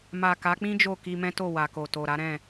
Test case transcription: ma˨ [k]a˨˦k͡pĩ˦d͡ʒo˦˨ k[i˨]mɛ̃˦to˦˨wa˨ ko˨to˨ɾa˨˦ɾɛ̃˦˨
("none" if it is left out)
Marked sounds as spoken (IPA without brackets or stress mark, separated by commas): k, i˧